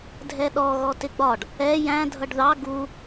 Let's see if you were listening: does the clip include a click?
no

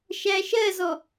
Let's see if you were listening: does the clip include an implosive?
no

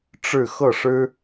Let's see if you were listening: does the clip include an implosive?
no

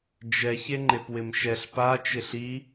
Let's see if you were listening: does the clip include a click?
yes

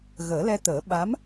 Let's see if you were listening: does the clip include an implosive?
yes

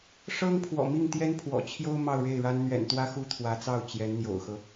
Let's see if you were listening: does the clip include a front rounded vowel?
no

